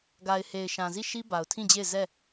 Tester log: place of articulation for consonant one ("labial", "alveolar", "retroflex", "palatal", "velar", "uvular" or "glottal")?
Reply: velar